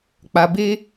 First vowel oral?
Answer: yes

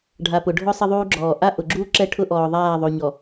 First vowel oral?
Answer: yes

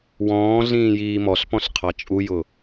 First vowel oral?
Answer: no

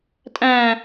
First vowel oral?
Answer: no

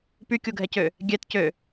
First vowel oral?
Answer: yes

